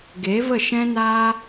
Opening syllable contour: rising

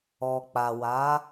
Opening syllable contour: low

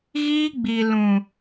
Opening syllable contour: high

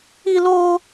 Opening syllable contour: high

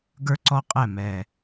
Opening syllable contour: high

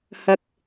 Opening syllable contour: low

